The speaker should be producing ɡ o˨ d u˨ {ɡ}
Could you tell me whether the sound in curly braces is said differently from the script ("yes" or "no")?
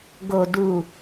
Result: yes